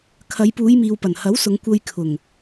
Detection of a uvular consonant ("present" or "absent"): absent